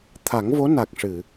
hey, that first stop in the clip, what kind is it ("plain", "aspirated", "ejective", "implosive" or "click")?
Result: aspirated